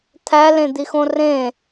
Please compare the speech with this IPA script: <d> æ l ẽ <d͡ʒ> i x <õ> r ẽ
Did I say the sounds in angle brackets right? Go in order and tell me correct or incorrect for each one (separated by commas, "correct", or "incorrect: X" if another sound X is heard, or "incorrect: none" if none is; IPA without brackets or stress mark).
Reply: incorrect: t̪ʰ, incorrect: d̪, correct